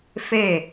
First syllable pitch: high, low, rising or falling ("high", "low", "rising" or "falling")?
falling